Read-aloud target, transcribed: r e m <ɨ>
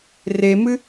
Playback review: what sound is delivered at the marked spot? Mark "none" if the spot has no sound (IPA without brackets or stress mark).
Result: ɨ